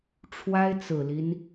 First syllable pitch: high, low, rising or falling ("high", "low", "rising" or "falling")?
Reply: high